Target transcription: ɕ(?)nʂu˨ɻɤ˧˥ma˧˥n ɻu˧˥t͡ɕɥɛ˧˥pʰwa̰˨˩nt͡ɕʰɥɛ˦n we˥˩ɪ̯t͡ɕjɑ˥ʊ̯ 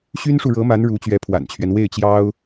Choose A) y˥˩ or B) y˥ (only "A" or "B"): B